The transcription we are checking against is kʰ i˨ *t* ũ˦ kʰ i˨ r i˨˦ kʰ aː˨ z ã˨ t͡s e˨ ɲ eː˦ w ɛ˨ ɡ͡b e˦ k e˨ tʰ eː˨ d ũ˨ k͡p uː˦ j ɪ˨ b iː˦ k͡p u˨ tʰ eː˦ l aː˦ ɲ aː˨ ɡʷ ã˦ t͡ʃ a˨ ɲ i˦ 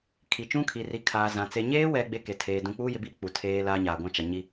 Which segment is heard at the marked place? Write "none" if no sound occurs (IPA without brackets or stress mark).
t͡ʃ